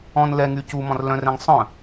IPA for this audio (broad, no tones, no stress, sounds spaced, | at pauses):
ɔ̃ n l ɛ ŋ y c u m ɔ̃ r l œ̃ r ɛ̃ ŋ sˤ œ̃